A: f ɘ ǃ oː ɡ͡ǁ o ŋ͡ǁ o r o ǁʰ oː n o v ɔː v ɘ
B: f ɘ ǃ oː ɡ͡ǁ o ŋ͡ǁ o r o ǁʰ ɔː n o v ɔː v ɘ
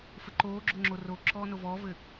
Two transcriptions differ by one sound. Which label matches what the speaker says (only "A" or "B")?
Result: B